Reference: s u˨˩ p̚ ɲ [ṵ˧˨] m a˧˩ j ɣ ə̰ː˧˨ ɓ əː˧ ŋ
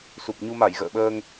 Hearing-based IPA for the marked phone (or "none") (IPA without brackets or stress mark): u˧